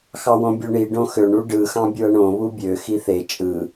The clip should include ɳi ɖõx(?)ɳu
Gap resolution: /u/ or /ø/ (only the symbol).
ø